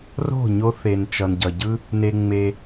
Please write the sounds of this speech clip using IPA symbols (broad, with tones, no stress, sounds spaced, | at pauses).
r o̤˦˨ ɲ o˧ θ e˨ n t͡ʃ ʌ˨ n ɟ ʌ˨ ɟ ɯ˦ | n e˧ ŋ͡m e˧